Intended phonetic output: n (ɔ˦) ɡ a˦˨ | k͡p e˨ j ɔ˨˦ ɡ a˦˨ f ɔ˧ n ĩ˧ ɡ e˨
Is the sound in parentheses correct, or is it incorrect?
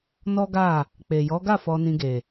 correct